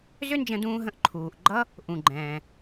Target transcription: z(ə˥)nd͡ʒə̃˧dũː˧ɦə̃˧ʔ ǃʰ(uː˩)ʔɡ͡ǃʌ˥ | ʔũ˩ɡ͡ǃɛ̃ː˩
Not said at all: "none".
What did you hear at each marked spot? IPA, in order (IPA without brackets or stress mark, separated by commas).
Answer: ʏ˥, uː˩